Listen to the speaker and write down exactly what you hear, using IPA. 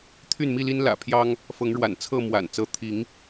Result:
t̪ʰ y˥˨ n m i˥˨ l i˦ n l ä̰˨˩ pʰ j ɑ˦ ŋ | f ɤ˨˦ ŋ ɻ w a̰˨˩ n t͡sʰ ɤ˥˨ m w a̰˨˩ n t͡s ɤ˨˦ t̪ʰ i˨˦ ŋ

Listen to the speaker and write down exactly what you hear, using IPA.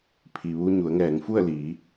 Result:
pʰ i˩ ʋ uː˧ ɲ u˩˧ ə̯ ŋ ɛː˩˧ ŋ f u˥˨ ə̯ l iː˩˧

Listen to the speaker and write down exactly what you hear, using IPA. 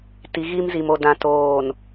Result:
t i˨˦ ɣ iː˦ m z i˨ m o˨ d ã˨ t oː˨ n

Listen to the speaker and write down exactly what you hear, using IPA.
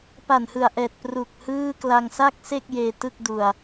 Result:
p a˨˩ n h ɯ˨˩ a̯ ʔ ɛː˨˩ t̚ p r u˨˩ k̚ h ɯː˥˩ k l a˧ ŋ s a˥˩ k̚ s e˥˩ k̚ j eː˧ t ɯ˥˩ k̚ d u˧ a̯

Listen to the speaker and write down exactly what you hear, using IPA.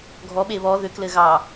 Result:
ɡʱ ɔ ɓ e β ɔ ð ʏ k l ɘ ɣ ɑ

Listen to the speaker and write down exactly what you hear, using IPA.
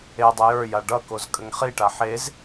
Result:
e dˤ ə j ə˞ j a ɖ ʌ k o z kʼ ə ŋ χ i ʈ a ħ e z

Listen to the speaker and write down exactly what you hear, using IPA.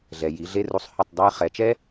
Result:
ɮ ɛ˨ j i˨˦ ɮ e˦ r u˧ sˤ h ɵ˦˨ tˤ dˤ ɛ˦ j χ ɛ˨˦ t͡ʃ ɛ˦

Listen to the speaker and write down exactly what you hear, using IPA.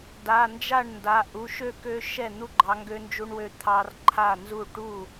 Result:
d a˩˧˩ n d͡ʒ a˥˩ ɳ n d a˩˧˩ ʔ u˩˧˩ ʃ ø˥˩ k ø˦ ʃ ɛ˥˩ n̪ u˦ ɡ͡ǃ ɑ˨˦ ŋ ɡ ø˦ n d͡ʒ u˦ ɳ w ø˦ t̪ʰ ɑ˦ r ǃʰ a˥˩ n z u˥˩ ʈ u˥˩

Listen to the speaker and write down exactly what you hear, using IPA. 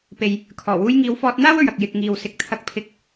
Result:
p e˨ j | kʰ ɔː˨˩ w uː˧ j ŋ iː˨˧ w f ɔː˧ t̚ n̪ aː˥ w ɵ˨ ɥ ɐ˨ k̚ j ɪ˨ k̚ ŋ iː˨ w s ɪ˨ k̚ t̪ʰ ɐ˧ k̚ pʰ ɪ˨˥ k̚

